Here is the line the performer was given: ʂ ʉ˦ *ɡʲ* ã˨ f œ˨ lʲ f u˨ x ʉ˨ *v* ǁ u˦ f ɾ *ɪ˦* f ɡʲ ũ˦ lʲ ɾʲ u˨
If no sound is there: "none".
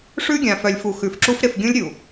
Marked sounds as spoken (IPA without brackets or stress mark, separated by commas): ɡʲ, f, ɪ˦˨